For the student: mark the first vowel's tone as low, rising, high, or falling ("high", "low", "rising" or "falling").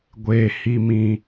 low